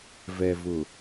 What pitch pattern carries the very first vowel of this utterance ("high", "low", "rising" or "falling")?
low